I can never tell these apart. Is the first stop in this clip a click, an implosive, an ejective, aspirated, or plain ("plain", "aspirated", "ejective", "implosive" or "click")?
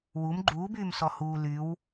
click